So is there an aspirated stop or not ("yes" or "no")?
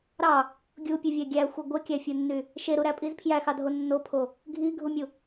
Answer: yes